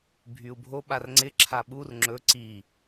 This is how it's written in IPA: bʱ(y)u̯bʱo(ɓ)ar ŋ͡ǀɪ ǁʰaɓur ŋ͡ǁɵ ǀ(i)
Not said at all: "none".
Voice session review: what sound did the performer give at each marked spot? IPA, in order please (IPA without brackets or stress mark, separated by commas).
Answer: y, ɓ, i